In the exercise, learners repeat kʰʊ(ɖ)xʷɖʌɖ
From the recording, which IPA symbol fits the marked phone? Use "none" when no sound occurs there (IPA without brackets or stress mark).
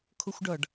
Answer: none